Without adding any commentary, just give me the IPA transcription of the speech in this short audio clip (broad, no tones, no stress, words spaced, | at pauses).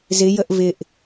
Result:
zɪjəʔ vɪʔ